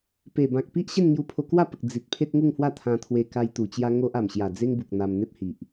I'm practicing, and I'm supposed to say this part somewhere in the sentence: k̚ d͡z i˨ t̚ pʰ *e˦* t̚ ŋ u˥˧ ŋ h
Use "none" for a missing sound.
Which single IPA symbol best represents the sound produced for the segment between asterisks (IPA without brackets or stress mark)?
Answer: e˦